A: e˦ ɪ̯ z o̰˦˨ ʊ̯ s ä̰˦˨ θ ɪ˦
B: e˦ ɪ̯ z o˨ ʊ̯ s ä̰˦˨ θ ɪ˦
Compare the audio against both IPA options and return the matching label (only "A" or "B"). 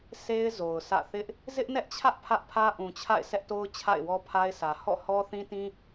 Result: B